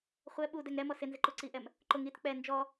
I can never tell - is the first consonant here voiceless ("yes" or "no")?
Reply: yes